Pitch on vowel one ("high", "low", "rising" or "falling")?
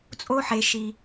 high